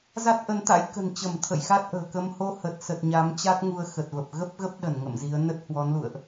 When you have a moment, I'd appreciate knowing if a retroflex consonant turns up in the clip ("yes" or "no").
no